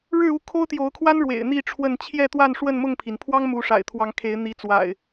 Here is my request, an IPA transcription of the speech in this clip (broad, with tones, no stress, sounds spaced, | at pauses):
ɻ ɻ̩˥˨ u˥˨ kʰ o˦ ʊ̯ t̪ j o˨˦ ʊ̯ kʰ w a˦ n ɻ w ḛ˨˩ ɪ̯ n̪ i˥˨ ʈ͡ʂʰ w ə˥˨ n t͡ɕʰ j ɛ˥˨ t̪ w a˥˨ n ʂ w ə˥˨ n m ʊ˥˨ ŋ pʰ i˩ n pʰ w ɑ˦ ŋ m u˨˦ ʂ a̰˨˩ ɪ̯ t̪ʰ w ɑ˨˦ ŋ kʰ e˨˦ ɪ̯ n̪ i˨˦ t͡s w a̰˨˩ ɪ̯